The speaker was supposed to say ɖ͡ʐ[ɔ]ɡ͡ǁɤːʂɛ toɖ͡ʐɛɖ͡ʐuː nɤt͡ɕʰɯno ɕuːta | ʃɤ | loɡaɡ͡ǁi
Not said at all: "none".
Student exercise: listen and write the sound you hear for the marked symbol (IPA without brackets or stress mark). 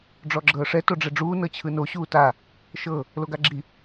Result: ɔ